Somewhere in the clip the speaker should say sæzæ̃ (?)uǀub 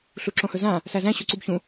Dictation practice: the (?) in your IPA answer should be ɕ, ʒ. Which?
ɕ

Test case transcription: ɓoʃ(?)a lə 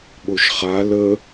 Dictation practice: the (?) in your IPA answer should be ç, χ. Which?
χ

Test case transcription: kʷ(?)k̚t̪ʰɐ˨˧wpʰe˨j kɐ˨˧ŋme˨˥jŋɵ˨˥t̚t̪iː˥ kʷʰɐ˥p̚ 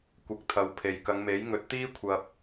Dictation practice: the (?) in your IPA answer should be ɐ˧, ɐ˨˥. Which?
ɐ˧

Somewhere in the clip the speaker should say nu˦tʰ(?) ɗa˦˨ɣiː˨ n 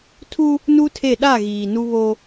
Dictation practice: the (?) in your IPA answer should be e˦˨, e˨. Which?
e˦˨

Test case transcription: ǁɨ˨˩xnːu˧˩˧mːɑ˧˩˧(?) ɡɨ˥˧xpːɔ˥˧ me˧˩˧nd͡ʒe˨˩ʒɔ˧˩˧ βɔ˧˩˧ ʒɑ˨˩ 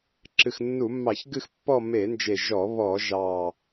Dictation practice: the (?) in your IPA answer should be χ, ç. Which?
ç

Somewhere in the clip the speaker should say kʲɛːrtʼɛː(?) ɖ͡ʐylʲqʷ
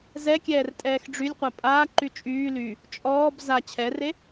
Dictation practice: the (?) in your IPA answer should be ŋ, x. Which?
x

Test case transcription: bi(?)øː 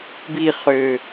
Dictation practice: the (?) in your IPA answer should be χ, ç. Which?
χ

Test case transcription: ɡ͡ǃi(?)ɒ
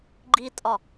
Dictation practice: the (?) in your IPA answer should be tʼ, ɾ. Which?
tʼ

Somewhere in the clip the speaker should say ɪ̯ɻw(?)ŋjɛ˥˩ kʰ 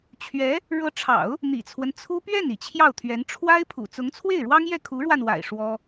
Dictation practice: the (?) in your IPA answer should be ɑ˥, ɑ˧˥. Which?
ɑ˥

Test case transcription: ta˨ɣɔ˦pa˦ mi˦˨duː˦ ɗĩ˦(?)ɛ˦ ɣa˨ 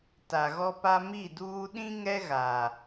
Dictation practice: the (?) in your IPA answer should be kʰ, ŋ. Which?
ŋ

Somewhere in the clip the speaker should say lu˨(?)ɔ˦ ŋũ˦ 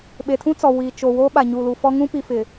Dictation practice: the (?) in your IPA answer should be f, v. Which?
f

